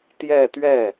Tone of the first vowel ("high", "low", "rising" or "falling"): falling